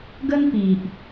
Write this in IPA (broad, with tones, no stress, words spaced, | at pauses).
ɡə˦n pi˨ʔ